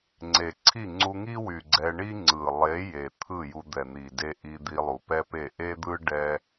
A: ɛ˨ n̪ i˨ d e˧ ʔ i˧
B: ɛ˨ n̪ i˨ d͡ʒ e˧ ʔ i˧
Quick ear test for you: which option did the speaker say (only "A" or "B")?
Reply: A